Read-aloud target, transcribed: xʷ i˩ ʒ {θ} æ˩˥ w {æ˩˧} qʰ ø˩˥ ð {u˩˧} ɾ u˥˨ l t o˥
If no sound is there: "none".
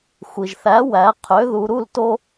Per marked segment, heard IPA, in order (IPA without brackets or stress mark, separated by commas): θ, æ˩˧, u˩˧